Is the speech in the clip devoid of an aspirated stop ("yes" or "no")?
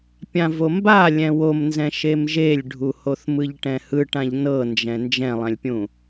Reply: yes